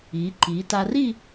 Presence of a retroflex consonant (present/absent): absent